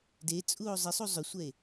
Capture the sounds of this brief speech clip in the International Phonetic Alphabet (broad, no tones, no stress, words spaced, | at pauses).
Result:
det͡sʼuo̯ zˤɪsˤu zˤʏsʷɛe̯